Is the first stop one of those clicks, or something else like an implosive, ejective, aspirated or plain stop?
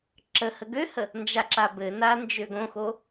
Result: click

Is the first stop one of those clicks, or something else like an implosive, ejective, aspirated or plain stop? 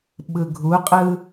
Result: implosive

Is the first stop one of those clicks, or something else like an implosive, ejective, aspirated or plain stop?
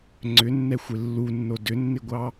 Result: click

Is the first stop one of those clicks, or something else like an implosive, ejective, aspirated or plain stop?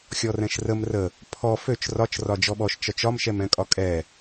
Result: aspirated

